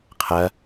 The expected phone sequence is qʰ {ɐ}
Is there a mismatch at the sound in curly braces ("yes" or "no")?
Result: no